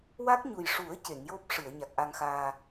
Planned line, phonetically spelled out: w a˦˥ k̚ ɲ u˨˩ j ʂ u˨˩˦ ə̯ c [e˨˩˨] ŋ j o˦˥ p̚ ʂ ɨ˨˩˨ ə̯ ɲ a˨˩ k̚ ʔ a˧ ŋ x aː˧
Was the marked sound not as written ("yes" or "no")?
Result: no